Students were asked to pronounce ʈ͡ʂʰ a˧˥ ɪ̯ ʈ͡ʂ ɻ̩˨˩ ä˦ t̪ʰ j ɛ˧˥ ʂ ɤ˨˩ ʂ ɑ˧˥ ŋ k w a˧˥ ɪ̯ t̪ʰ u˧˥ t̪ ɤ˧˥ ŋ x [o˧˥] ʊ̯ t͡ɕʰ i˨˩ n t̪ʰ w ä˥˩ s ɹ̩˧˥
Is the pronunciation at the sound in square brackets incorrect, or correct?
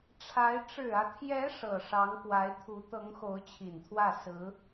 correct